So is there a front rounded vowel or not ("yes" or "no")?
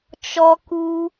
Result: no